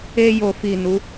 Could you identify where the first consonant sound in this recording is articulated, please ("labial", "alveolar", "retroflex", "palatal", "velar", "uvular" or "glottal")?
palatal